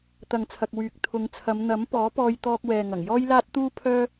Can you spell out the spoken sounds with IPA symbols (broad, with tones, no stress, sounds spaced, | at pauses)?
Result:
t̪ ɐ˨ ŋ t͡sʰ ɐ˨ k̚ w yː˨ k̚ t̪ʰ ʊ˨˧ ŋ t͡sʰ ɐ˨˧ m n̪ ɐ˨˥ m p ɔː˨˥ p ɔː˧ j t̪ ɔː˧ k̚ w ɛː˨ ŋ ɐ˨˩ ŋ j ɔː˥ j l aː˥ t̚ t̪ uː˥ pʰ œː˥